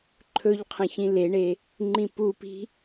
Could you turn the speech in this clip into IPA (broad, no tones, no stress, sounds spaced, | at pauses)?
ǃʰ ɵ ʎ qʰ ə̃ ç ĩ l e ɳ e | ŋ͡ǃ ĩ p u p i̤